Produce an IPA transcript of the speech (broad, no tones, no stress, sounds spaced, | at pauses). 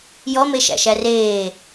j ɔ m e ʃ æ̰ ʃ æ r eː